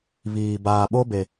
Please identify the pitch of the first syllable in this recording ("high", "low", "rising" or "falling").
low